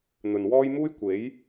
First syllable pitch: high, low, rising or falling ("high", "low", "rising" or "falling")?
low